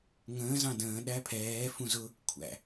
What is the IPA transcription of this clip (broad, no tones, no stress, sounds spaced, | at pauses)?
ŋ ə̃ː z ɑ̃ d ə̃ː ɗ æ pʰ ɛː f ũ z ʊ | kʷʰ æ̰